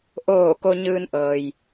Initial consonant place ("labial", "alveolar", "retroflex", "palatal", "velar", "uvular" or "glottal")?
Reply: glottal